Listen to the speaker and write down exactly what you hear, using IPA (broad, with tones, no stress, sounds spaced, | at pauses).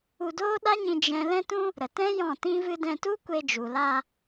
u˧ d oː˦ ɗ a˦ ɲ ĩ˧ d͡ʒ ɛ̃˦ l ɛ̃˦ t ũ˦ | ɾ ə˨ t ɛ̃˦ j ɔ̃˦˨ t ĩ˦ v ɨ˦ d ɛ̃˧ t u˦ kʷ e˧ d͡ʒ u˨ l a˧